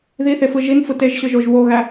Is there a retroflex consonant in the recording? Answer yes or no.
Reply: no